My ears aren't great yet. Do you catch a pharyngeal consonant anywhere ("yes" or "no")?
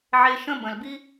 yes